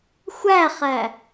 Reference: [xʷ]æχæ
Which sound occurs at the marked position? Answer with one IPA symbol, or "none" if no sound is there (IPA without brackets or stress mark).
xʷ